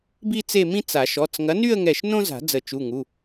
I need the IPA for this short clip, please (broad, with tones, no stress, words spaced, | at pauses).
bi˥t͡se˥˧ mĩ˥t͡sa˨˩˦ ʃɔ˩˧˩t͡sŋɐ˨˥ny˥˧ə̯ŋɛ˧˩ʃ nõ˥za̤˨˩˦ d͡zə˨˩˦t͡ʃu˩˧˩ŋu˩˧˩